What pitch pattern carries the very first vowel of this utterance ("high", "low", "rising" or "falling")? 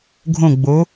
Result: falling